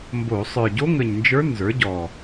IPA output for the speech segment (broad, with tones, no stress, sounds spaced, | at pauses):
m b o˧˩˧ sˤ ə˞˨˩ ɟ o˧˥ ŋ ə˨˩ ɲ n d͡ʒ ə˞˧˥ n z ə˞˩˥ ɟ ɔ˨˩